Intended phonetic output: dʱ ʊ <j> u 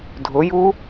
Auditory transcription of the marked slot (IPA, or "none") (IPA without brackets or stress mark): j